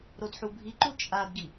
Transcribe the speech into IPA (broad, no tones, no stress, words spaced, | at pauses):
ɾodħubʱiǃu t͡ʃʼadɡi